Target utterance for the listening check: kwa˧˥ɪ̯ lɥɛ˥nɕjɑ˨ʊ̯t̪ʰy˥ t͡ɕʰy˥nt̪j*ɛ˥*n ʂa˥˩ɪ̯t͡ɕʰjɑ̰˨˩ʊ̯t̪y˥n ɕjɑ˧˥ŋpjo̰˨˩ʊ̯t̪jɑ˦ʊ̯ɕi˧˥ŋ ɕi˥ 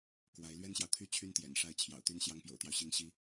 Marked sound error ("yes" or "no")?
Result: yes